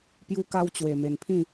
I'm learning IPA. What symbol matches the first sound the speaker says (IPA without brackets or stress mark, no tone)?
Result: p